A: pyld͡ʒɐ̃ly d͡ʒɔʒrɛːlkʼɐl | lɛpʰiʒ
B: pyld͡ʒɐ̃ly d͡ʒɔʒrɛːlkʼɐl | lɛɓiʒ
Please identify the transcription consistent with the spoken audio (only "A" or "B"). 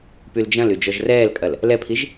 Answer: A